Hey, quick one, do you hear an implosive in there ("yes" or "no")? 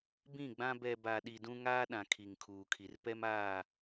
yes